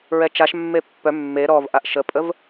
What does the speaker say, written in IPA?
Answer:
ɹɛt͡ʃaʃ mːepːœ mːe ɾɔv ʔaʔʃəpʼəv

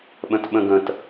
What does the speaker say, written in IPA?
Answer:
ɓə̃tɓə̃ɡə̃t

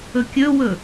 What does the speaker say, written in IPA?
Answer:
ɵkʲɵwɵ

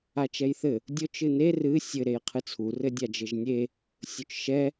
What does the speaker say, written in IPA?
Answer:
at͡ʃɛjθɘ | dʲot͡ʃ ɨne rɨ sʲɘ ɾejqʰɨt͡sʰu rɘdʲad͡ʒɘʒnʲe | sʲot͡ʃʃɛ

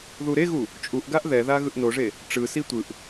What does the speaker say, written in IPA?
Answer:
ðuɾeɣu | t͡ʃʼuʔɡaʔ ðɛða ɣɯʔnoʐe | ʈ͡ʂɯsi tʷɯʔ

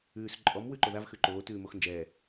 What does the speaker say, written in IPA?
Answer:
ʉːs ǃʼɔm wʉǃoðav xʉǃoː tʉːmoxnd͡ʒɛː

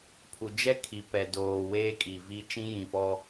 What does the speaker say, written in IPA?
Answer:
pʰu˨ d͡ʒɛ˦ kʰi˨pɛ˨ doː˨weː˦ kʼi˨vi˦ t͡ʃĩ˦jĩ˨fɔ˦

